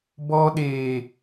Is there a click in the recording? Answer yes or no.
no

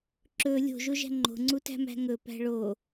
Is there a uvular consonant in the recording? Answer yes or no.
no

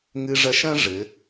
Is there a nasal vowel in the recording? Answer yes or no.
yes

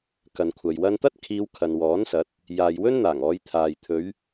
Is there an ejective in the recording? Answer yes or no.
no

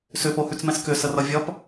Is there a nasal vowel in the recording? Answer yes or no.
yes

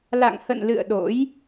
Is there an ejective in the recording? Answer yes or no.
no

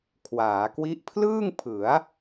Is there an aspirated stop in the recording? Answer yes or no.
yes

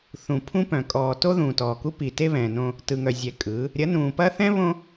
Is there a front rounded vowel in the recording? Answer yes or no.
yes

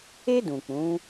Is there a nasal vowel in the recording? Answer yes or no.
yes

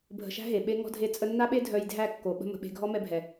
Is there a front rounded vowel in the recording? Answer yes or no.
yes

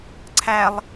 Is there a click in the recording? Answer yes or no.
yes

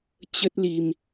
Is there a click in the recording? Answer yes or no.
no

